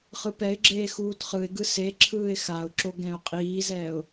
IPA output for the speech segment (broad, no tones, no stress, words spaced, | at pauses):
χɯpɛɪ̯ɡ͡ǁeː xuːtχɯɪ̯ɡɯ seǁʰɯːɪ̯ xaʊ̯ǁo ɡɛ̃ʊ̯qʼiːzɛːʊ̯